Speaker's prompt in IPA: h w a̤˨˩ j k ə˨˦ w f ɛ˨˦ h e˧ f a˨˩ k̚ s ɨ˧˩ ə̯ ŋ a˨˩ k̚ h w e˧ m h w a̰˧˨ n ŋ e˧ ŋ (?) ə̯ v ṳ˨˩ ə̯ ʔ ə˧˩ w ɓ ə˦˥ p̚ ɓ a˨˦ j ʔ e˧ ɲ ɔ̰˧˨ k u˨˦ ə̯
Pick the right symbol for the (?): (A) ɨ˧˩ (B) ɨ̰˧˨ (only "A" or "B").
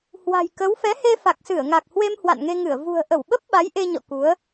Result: A